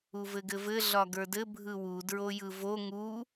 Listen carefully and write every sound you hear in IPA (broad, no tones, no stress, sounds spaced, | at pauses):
u v ɘ ɡ ɘ v ɘ ɮ ɒ ɡ ə˞ d ɘ bʱ ɯ w u d ɹ o j ɯ v o ŋ u